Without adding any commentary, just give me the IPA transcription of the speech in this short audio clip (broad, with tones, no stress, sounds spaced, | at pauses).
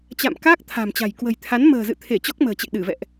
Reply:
t͡ɕ a̰˧˨ m k aː˦˥ k̚ t̪ʰ a̤˨˩ m t͡ɕ a̤˨˩ j k w ə̤˨˩ j t̪ʰ a˨˦ n m ə̤ː˨˩ z ɨ̰˧˨ t̪ʰ e˧˩ t͡ɕ ɔ˦˥ k̚ m ə̤ː˨˩ t͡ɕ ḛ˧˨ ɗ ɨ˧˩ v ɛ̰˧˨ ʔ